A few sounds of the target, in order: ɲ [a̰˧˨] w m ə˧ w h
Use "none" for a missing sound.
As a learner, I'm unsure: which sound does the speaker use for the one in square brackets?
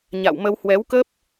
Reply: a̰˧˨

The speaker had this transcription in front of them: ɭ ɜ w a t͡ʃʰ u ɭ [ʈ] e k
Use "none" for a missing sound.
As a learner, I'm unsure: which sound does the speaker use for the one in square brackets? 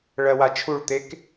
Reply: t̪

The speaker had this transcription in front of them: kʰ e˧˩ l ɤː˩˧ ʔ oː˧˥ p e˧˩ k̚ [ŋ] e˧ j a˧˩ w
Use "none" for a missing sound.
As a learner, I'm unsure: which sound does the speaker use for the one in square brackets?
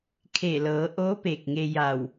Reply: ŋ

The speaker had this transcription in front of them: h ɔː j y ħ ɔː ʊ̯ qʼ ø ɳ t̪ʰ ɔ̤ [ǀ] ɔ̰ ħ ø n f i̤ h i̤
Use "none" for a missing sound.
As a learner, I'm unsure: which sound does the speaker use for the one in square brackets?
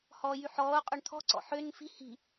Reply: ǀ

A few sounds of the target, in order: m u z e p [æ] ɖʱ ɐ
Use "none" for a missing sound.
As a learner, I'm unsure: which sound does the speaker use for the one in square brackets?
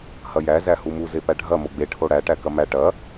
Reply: æ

